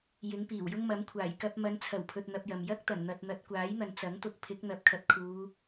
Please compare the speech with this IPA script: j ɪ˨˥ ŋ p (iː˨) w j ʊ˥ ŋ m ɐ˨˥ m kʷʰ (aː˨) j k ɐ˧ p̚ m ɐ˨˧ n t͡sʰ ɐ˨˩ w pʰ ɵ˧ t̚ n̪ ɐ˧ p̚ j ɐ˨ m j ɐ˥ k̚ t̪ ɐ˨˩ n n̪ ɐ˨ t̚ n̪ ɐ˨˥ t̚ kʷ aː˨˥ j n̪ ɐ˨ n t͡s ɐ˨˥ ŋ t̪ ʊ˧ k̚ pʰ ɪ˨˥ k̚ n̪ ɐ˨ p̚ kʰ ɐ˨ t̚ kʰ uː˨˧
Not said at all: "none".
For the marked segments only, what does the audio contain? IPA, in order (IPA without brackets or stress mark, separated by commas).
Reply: iː˨˩, aː˨˩